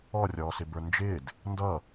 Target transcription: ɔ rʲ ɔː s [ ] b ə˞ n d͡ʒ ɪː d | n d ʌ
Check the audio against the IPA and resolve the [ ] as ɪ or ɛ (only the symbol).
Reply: ɪ